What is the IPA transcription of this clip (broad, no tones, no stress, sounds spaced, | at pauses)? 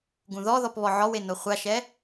ɡ ũ ð ɔ ð ɔ p β ɔ ʕ ɔ w e n o χʷ a ʃ ɛ